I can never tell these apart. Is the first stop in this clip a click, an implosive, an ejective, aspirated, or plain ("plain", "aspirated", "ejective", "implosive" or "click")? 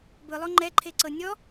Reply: plain